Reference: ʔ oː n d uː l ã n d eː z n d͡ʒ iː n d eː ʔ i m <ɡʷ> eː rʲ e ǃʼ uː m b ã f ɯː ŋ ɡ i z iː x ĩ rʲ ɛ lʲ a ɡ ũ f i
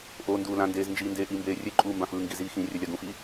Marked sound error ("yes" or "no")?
yes